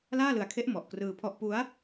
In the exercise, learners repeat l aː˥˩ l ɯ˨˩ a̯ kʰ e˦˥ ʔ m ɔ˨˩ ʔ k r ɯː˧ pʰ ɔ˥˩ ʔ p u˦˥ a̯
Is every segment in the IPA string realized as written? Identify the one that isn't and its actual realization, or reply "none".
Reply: none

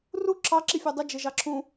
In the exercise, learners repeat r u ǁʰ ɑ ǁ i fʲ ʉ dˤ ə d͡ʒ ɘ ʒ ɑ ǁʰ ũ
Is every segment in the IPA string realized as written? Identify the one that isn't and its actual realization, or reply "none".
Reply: none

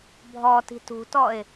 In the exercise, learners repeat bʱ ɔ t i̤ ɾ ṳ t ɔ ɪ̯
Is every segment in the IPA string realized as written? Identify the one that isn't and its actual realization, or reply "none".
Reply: ɾ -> t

